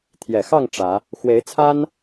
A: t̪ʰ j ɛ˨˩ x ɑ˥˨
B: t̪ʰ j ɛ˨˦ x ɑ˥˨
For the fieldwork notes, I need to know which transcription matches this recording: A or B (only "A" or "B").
A